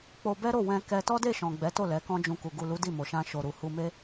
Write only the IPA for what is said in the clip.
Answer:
k͡po˧ bɛ˦ɾo˦˨ wɛ̃˧kɛ˧ tɔ˦de˦˨ ʃɔ̃˨ ɡ͡bɛ˨˦to˦˨ lɛ˨˦kɔ̃˦d͡ʒũ˧ku˨ ɡu˨lu˨˦ di˦˨mo˨ʃã˧ ʃo˨ɾu˨hu˧me˦

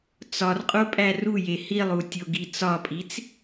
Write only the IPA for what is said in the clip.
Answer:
t͡sɒrqʼo pʼæruje hilˠu tʲoɡit͡sɒpʼit͡s

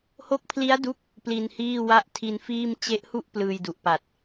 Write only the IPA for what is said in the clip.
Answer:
ho˦˥k̚pʰli˦˥a̯du˦˥k̚ | pli˧nhiː˥˩wa˥˩ʔ tʰi˧nfiː˥˩m t͡ɕe˦˥ʔhu˥˩ʔ plɯː˧jdu˨˩ʔpa˨˩t̚

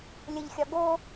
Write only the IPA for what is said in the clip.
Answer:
lʲəʎxʲɒ ɡo

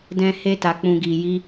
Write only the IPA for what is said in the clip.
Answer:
dɛ̃˧he˧ta˨k͡pũ˨ ɡi˨ji˧

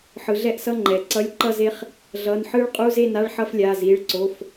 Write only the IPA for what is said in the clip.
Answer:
ħɯ˩˧ɮɛ˦˥ʔsʌ˧˥˧ ŋ͡ǃɛ˩˧ǀʌ˧˥˧lʲ ǃʌ˥˧ze˦˥χ | ɮʌ˩˧˩nħɯ˦˥ɭqʼu˧˥˧ze˥˧ na˧˥˧ɭħʌ˥˧flʲa˩˧˩ zi˩˧˩ɭǀo˩˧˩f

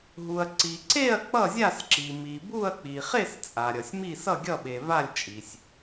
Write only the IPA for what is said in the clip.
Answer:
ɦu˩ɐ̯ǀi˩ǀe˥˨ɐ̯ k͡pʌ˥˨zʲa˥˨sǁi˩ mi˩bu˥˨ɐ̯ k͡pi˩χe˥˨s t͡sʼa˩ɾʲʌ˩sʲmi˥˨ sʌ˥˨ɡʲʌ˥˨ɓe˩ va˥˨lʲt͡ʃʼi˩sʲ

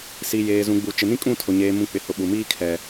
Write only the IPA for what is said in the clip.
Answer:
si˨jeː˨zũ˨ɡ͡bu˨ t͡ʃɪ˨nĩ˦kʼũ˦˨tʰʊ˨ ɲeː˨mũ˨ k͡pɪ˨hʊ˨ɓu˨miː˦ kʰɛ˦

